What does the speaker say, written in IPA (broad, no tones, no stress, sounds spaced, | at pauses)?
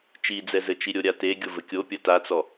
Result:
t͡ʃ i d͡z ɛ z ɘ t͡ʃ i ɾʲ o ɾʲ a t e ɡʲ o v ɘ kʲ o pʲ ɐ t a t͡s ɔ